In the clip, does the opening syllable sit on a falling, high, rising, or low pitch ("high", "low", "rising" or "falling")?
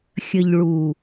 low